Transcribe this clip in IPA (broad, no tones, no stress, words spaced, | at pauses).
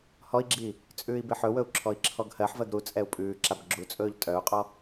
hɔi̯ɡ͡ǁi | t͡sʼʉːi̯beħɵwɵu̯ ǁʰɔi̯ǁʰɔɡhɜħvɜɡ ɾu t͡sʼɛu̯pʼʉːǁab ɡ͡ǁut͡sʼɵːʎ tʼœu̯qʼɔ